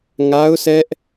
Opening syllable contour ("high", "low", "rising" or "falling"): high